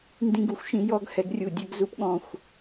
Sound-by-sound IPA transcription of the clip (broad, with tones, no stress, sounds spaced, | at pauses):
n d ĩ˦ ɡ u˨ xʷ ʃ ĩ˦ j ɔ˦ ɡ h ɛ˦ ɡ rʲ u˦˨ dʲ ɛ˦ ɡ z u˦ p ɠ ɔ̃˦˨ xʷ